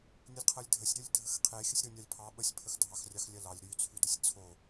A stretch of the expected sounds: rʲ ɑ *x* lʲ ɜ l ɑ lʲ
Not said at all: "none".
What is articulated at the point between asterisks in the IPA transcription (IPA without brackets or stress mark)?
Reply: x